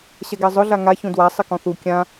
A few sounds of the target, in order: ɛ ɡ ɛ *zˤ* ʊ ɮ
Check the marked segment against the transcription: correct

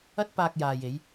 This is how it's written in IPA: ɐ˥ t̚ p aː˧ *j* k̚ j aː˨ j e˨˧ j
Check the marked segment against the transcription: incorrect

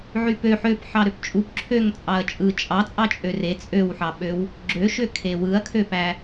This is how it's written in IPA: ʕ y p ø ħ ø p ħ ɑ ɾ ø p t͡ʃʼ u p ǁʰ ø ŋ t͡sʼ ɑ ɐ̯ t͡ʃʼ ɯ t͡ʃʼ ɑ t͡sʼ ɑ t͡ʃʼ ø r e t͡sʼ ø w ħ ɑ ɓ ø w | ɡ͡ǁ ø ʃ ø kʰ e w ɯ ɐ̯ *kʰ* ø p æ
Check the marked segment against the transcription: correct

